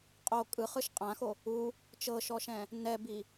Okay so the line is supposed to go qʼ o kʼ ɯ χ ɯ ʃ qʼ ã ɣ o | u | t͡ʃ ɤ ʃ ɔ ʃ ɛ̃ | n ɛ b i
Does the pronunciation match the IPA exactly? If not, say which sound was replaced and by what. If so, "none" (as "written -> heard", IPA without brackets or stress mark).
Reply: ɣ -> x